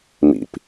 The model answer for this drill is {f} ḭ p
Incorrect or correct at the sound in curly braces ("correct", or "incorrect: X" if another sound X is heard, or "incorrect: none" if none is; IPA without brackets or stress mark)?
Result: incorrect: m